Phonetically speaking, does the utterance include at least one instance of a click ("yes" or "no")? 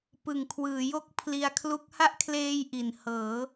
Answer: no